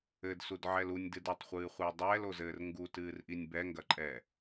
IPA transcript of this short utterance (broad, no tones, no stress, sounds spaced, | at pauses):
ɘ d s u d ʕ ɛ l u nʲ d ɨ d ɐ tˤ χʷ ɨː χʷ ɨː dˤ ɛː l o z ɘː r ŋ ɡ u t ɨː r ʔ i nʲ b ɛ ŋ ɡ ɐ ǃʼ ɛː